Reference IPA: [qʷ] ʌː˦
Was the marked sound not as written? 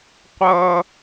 no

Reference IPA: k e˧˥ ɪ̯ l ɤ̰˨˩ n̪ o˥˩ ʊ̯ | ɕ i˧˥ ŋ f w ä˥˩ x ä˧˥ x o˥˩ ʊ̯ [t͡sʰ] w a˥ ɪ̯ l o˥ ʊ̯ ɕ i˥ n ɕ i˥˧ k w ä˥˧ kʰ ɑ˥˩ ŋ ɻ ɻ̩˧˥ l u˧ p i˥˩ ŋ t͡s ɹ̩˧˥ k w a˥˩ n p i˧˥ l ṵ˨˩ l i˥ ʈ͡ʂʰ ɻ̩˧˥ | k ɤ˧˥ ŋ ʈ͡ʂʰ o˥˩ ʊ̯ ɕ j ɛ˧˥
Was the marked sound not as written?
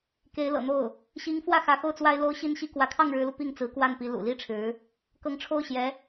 yes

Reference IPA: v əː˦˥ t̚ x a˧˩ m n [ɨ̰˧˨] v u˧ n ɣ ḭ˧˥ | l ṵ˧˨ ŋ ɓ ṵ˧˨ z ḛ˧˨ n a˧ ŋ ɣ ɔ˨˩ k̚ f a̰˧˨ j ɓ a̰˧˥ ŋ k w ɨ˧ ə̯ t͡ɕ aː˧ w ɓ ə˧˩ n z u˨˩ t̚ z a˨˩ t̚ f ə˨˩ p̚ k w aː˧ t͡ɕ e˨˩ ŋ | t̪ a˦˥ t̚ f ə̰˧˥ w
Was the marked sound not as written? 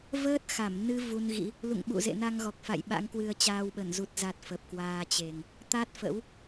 yes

